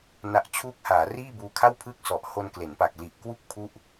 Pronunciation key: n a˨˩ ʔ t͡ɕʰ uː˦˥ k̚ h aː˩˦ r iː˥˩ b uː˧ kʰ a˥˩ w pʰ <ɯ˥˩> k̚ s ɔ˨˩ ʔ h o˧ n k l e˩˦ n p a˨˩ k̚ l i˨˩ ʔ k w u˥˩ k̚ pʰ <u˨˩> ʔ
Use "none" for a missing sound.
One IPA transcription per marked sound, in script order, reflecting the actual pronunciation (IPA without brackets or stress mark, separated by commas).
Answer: ɯ˥˩, u˥˩